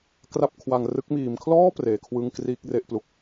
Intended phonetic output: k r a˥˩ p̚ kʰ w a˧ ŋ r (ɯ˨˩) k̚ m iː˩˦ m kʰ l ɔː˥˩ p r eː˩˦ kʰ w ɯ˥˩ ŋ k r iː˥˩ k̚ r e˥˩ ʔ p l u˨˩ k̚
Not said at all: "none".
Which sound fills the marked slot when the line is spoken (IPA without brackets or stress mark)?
ɯ˦˥